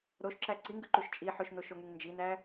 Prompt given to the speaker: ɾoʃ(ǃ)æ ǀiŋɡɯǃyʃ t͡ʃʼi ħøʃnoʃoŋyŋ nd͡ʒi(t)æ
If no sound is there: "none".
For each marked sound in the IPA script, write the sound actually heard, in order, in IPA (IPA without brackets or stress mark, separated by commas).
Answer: ǁ, n